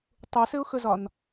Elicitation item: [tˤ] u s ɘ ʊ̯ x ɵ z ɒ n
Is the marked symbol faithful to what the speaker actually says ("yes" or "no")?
yes